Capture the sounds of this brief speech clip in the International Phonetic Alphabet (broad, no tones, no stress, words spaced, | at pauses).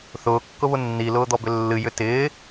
θʊːkːʊβʊ nːilʊːd̪ɔbʏ lːɨjʏ tɪː